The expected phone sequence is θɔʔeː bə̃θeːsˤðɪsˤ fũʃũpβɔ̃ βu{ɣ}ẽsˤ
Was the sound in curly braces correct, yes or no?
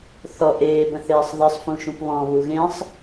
yes